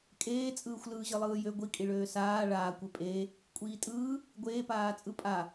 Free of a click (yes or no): yes